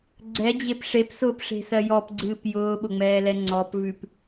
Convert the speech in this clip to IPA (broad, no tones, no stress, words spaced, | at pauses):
ɡ͡ǀɛd͡ʑep ʂepsʊːpʂe̤sɜ jɔpɡ͡ǀɨːp jʊːɓʊŋ͡mɛːlɛ ŋ͡ǀɔpvʉp